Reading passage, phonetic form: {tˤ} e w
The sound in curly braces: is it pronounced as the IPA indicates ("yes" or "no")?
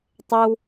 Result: yes